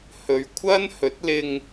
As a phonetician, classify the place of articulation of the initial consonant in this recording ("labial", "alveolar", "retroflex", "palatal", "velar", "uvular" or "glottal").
glottal